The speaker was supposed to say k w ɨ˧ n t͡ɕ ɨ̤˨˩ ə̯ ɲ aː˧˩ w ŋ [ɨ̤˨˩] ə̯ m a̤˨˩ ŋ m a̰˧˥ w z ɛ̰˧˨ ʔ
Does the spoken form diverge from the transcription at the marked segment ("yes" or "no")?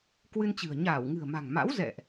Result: no